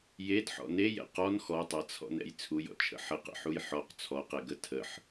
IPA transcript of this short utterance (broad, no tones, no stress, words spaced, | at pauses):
jedħɔ̰ nejɛ̰ qɔn xɔtˤat͡sʰɔ̰nɛ̰j t͡sʰujɔ̰t͡ʃʰə̰ ħəqə̰ħuj ħɔq t͡sʰɔqɛɡə tʰəħ